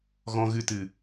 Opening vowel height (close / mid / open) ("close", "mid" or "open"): mid